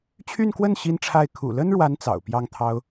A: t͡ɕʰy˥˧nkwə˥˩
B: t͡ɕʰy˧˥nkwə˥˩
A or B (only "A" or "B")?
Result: A